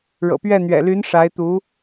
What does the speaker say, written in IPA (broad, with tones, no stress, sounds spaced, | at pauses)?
ɻ ɤ̰˨˩ p ɥ ɛ˥˩ n̪ ɥ ɛ̰˨˩ l y˧˥ n ʂ a˧˥ ɪ̯ t̪ u˧˥